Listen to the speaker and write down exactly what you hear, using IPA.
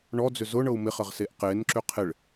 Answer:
ɳ ɔ d͡z ʏ z ʊ ɳ ɤ u̯ m ɪ χ ə ʁ s e ʔ q e n ǁ ʏ qʰ ɪ ɭ

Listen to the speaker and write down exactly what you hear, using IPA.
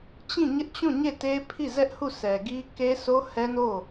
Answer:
t͡ɕ ĩ˦˨ ɲ ɪ˦ ʔ t͡ɕ ũ˦˨ ɲ e˦˨ t e˦ pʰ i˦˨ z ɛ˦ ʔ h u˦˨ sʰ ɛ˨ ɡ i˦ k e˦ sʰ o˦ h ɛ˦ n o˦˨

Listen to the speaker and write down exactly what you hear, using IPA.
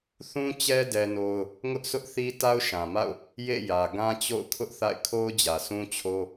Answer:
θ ũ˦ t͡ɕ ɛ˦ d ɛ˦ n o˦ ʊ̯ | ŋ ʊ˦ ʔ s ʊ˦ ʔ θ i˦ t a˦ ʊ̯ ʃ ã˨ m a̰˦˨ ʊ̯ | j ḛ˦˨ j ä˨ ɡ ã˦ t͡ɕ o̰˦˨ ʊ̯ kʰ ʊ˦ ʔ θ a̰˦˨ ɪ̯ kʰ o˦ ʊ̯ d͡ʑ ä˨ s ũ˦ t͡ɕʰ o˦

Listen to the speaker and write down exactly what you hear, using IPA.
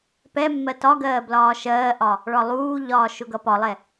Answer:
p ɛ mː ɜ t ɒ ɡ ɜː b l ɒː ʃ ɜː ʔ ɒ | ɭ ɒ lˠ uː ʎ ɒː ʃ ʊ ɡ ʌ p ɒ lˠ ɛ

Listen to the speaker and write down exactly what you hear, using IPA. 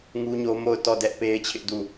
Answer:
ŋ u˦ ɲ o˦ m o˦˨ ʊ̯ t ɔ˦˨ d ɛ˦ ʔ p e˦ ɪ̯ t͡ɕʰ ɪ˦ ʔ d u˦˨

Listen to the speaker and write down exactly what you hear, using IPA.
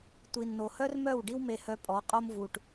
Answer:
tʷ i˨ nː o˨ h œ˦ r m œ˦˨ w ɖ i˦ w m e˧ h œ˧ pʼ ɔ˨˦ qʼ o˧ m v u˨ ʈ

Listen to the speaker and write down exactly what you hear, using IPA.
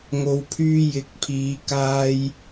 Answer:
ŋ o˨˧ w pʰ yː˧ j ɪ˨˥ k̚ pʰ iː˨˧ k aː˧ j

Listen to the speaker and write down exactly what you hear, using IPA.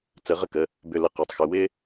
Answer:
t͡s ə˧˩˧ ʁ ə˦ k ə˩˧˩ | b ʏ˧˩ l ə˧˩ q e˩˧˩ tˤ x ʏ˩˧˩ w ɪ˦

